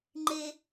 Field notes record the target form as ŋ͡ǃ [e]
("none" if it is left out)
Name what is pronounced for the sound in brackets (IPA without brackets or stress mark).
e